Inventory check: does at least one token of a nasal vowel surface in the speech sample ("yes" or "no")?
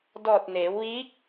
no